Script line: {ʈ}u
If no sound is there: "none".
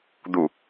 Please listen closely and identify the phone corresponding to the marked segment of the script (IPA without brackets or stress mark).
d̪